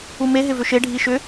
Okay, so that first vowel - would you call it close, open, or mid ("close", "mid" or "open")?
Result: close